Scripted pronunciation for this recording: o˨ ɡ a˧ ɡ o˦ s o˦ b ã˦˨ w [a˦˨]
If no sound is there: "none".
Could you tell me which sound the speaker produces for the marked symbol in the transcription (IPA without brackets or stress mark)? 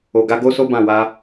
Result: a˧